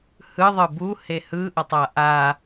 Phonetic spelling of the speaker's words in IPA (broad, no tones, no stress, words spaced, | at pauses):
hɯðˤɯ bu hehɯ ʔʌtˤaʔa